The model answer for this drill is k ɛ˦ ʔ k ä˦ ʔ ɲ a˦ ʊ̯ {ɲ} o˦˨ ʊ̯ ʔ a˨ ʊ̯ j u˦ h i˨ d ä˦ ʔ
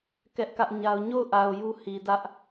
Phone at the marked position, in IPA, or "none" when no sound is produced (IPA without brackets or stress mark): ɲ